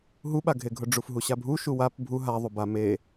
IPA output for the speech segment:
ɦ u ɓ a ɡʱ e ɡʱ ʊ ɖ͡ʐ u f ɦ u ɕ a bʱ u ʃ u w a p bʱ u ɦ a ðˤ u b a m e

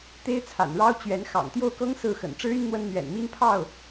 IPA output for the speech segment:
t̪ e˥ ɪ̯ t͡sʰ a̰˨˩ n ɻ ɑ˥ ʊ̯ t͡ɕ ɥ ɛ˧˥ n x ɑ̰˨˩ ŋ t̪ j o˥˩ ʊ̯ k ɤ˥ ŋ s ɹ̩˥˩ x ə̰˨˩ n ʈ͡ʂ ɻ̩˥ y˥ n n̪ w ə˥ n n̪ ɥ ɛ̰˨˩ n m i˥ n pʰ ɑ˥˩ ʊ̯

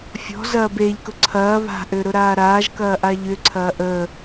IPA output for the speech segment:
fʲ ɔ̤ z ɐː b e ʎ k ʊ ǀʰ ɐː β a̤ ʔ ø ɾ ʊ ɾ aː ɾ aː ʒ k ɐː ʔ a ʎ ʏ ǀʰ ɐː ʔ ə

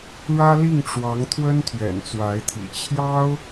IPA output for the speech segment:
ɻ ä˥ l i˥˩ ŋ ʈ͡ʂ w ɑ˧˥ ŋ t̪ʰ w ə˥ n t̪ʰ ɥ ɛ̰˨˩ n t͡s w a˧˥ ɪ̯ t̪ʰ ḭ˨˩ t͡ɕʰ j ɑ˥ ʊ̯

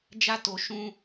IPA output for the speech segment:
d͡ʒ a˦ t o˧ ʃ ũ˦

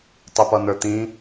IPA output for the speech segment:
tˤ u p ʌ n̪ ə˞ t̪ ĩ

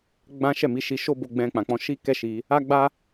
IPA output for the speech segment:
ɡ͡b ã˦ ʃ ɛ˦˨ m i˨˦ ʃ i˧ ʃ o˦ b o˧ ɡ͡b ɛ̃˧ k͡p ã˨ k͡p ɔ̃˧ ʃ i˦ k ɛ˦ ʃ i˧ | a˦ ɡ͡b a˦

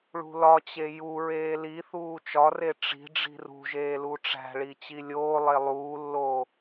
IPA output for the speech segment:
ɭ ṳ l ɒ t͡ɕ e j u ɹ eː l i θ uː t͡ʃ ɒ r e ʈ͡ʂ i̤ ɖ͡ʐ i̤ r ṳ ʒ eː l u ʈ͡ʂ æ̤ ɭ i t͡ɕ i lʲ oː lˠ e lˠ uː lː oː

